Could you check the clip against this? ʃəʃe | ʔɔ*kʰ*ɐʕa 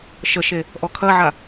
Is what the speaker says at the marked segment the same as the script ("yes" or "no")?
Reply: yes